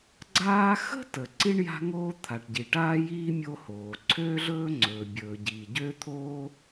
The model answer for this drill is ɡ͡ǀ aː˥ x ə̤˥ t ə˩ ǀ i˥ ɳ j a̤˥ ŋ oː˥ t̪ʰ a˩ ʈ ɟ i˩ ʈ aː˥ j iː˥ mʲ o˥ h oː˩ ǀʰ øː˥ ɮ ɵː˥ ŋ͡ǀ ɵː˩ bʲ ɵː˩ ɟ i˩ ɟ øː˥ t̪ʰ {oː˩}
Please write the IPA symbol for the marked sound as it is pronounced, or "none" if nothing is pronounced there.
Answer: oː˥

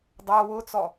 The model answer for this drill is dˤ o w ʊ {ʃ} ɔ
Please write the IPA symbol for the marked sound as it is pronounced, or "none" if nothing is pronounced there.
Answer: t͡s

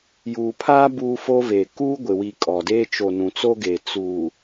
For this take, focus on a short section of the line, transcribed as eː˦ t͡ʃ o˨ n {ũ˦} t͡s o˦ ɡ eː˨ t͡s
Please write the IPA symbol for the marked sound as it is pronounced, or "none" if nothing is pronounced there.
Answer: ũ˨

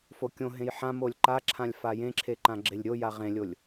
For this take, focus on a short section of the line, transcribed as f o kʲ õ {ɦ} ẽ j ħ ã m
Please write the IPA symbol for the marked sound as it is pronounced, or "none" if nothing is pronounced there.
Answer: ɦ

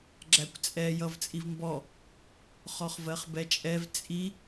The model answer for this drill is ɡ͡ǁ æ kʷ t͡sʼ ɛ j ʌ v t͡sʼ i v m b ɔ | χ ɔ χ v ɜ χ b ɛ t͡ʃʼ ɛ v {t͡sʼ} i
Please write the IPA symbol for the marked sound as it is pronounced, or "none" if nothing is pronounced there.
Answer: t͡sʼ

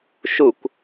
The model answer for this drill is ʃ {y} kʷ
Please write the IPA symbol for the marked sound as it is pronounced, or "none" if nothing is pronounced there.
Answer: u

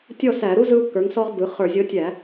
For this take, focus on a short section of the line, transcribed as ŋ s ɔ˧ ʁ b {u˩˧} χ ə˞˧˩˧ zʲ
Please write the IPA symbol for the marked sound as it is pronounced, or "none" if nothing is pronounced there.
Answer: ɯ˩˧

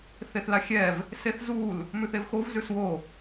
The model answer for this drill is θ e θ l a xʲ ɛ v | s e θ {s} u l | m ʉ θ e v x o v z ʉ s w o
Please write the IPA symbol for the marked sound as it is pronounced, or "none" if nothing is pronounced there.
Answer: z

